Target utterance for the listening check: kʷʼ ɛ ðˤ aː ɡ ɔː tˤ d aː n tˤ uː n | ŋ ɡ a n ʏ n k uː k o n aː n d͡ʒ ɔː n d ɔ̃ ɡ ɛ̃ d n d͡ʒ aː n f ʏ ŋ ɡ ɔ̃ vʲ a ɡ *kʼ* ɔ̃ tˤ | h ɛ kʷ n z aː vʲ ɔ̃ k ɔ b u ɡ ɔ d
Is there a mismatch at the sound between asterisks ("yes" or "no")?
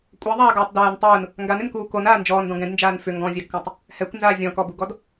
yes